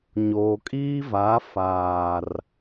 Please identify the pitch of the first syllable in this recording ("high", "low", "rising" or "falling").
low